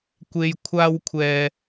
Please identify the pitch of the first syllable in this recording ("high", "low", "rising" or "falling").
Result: low